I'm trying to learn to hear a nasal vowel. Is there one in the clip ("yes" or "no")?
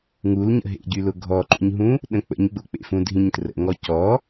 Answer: yes